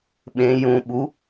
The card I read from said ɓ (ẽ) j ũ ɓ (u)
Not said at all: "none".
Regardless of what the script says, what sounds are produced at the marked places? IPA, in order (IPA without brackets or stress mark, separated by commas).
ẽ, u